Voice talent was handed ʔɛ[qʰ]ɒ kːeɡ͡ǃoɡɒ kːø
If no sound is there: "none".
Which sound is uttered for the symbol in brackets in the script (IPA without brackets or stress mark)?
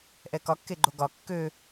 k